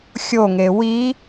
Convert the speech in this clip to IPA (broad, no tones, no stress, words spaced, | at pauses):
xʲoŋe wi